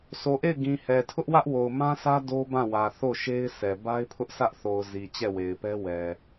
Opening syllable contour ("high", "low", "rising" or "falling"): low